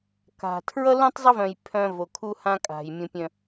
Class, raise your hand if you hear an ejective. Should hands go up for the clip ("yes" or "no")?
yes